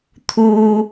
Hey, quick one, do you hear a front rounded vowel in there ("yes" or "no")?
no